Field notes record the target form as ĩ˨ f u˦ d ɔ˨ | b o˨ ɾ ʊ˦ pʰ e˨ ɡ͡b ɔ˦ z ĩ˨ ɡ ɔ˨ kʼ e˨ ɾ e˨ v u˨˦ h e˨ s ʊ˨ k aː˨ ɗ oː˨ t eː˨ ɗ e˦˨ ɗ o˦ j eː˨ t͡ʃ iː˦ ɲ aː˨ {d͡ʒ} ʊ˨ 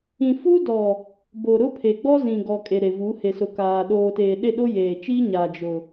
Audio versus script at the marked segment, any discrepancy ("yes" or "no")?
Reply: no